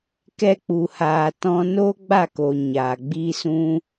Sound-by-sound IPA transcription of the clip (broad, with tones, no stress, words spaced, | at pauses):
kɛ˧k͡pu˨haː˨ tɔ̃˦ noː˦ɡ͡ba˦˨koː˨ ɲaː˨ɡ͡bi˦sũ˦